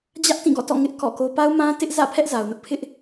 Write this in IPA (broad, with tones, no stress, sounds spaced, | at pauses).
d͡ʑ ä˦ ʔ t ĩ˦˨ ɡ ɔ̰˦˨ t ɔ̰˦˨ ŋ ɪ˦ ʔ k ɔ̰˦˨ k o˦ p a˦ ʊ̯ m ã˦ t ɪ˦ ʔ z ä̰˦˨ pʰ ɛ˦ ʔ z a˨ ʊ̯ n ʊ˦ ʔ pʰ ɪ˦ ʔ